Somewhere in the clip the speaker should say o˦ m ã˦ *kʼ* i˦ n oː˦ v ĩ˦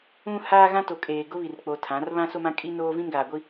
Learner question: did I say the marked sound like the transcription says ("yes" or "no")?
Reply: yes